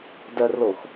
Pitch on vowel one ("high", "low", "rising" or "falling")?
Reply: low